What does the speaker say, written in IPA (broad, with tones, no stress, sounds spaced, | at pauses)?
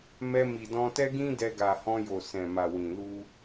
m ɛ˧ m i˨ d ɔ̃˧ t ɛ˦ ɡ ĩ˦ d ɛ˧ ɡ a˨ h ɔ̃˧ j o˨ s ɛ̃˨ m a˨ w ĩ˨ l u˧